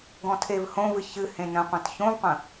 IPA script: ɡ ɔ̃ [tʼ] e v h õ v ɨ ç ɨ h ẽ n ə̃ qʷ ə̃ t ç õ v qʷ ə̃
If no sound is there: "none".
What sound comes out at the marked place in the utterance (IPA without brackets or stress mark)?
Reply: tʰ